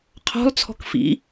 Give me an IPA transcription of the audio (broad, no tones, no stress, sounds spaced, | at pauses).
qʰ ɔ̤ lˠ t͡sʰ ɔ̤ k f ḭ